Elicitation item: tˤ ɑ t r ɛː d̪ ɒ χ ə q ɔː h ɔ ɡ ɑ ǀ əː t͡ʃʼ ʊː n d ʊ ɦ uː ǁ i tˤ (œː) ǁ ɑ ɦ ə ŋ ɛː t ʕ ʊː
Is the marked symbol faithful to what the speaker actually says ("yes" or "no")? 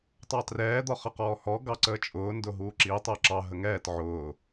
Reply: no